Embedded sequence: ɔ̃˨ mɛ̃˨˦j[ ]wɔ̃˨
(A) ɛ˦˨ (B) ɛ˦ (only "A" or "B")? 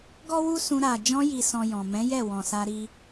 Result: A